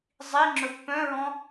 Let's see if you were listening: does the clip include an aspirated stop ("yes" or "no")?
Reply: no